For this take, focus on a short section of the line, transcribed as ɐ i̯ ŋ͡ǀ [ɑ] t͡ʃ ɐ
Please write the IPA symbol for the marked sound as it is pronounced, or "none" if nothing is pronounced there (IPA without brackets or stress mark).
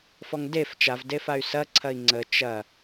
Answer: ə